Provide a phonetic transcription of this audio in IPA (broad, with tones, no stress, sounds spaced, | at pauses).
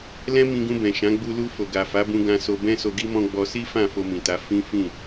l ɛ̃˦ m ĩ˧ ɡ ũ˧ b ɛ̃˨ ʃ ã˨˦ ɡ͡b u˧ l u˧ f o˨ ɡ a˨ f a˨˦ b ũ˧ ɡ ã˧ s o˧ b ɛ̃˦ s o˧ ɡ i˦ m ɔ̃˦ ɡ͡b ɔ˧ s i˦ f ã˦˨ f o˧ m ĩ˨ t a˨˦ f ĩ˦ f ĩ˦˨